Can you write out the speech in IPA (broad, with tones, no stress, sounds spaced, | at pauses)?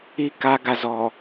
i˨ k a˨ ɡ a˨ z ɔ˨